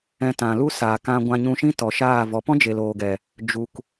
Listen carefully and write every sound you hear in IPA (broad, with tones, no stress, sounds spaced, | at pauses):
ɛ̃˧ t ã˨ l u˦ s a˨ k ã˧ ɡʷ ã˧ ɲ ũ˧ ʃ ĩ˦ t ɔ˨ ʃ aː˦˨ v ɔ˨˦ p ɔ̃˦ d͡ʒ e˨ l oː˨ ɡ ɛ˨ | d͡ʒ u˨ k